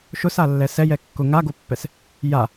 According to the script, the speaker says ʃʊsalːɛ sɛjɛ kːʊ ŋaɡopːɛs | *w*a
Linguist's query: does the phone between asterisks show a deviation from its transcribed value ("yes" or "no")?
yes